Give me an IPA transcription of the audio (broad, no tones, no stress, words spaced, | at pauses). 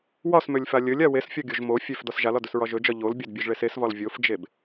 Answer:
wɒsmølʲfa lʲɵlʲa wesfʲɒɡʲoʒ mo fʲøfdɒs ʒalɒdɵsɹɒ ʒɵd͡ʒɒ ʎolbʲɒdbʲɵʒɭes esvɒl vʲofd͡ʒeb